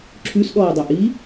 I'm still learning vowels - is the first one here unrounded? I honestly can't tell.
no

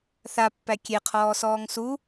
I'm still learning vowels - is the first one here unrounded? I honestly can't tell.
yes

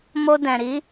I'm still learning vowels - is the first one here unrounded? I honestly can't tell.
no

